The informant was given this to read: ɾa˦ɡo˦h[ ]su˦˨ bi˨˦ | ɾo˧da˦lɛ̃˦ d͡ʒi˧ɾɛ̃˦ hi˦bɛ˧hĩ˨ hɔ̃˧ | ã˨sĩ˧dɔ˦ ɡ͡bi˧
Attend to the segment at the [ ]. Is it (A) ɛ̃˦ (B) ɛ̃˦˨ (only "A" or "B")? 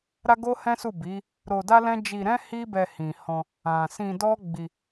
A